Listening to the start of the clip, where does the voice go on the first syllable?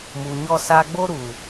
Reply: low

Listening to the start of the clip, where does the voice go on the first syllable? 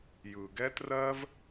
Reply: low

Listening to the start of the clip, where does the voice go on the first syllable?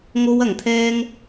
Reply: high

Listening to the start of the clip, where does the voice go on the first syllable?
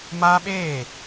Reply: high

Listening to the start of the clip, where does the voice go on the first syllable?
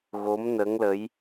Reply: rising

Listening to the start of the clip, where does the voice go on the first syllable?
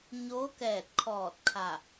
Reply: rising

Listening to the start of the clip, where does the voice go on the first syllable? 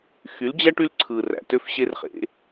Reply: rising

